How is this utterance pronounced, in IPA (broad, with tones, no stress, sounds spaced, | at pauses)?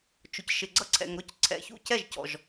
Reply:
t͡ʃ ʊ˨ c ʃ ɪ˨ ɡ͡ǀ ʌ˦ ǀʰ ɛ̰˨ ŋ ɾ ʊ˦ c ǀʰ ɛ̰˨ ç ṵ˦ c ɛ˦˨ ʒ c ɔ̰˨ ʒ